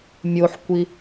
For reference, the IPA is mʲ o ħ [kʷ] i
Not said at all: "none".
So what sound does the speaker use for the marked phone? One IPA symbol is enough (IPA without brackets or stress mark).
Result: kʷ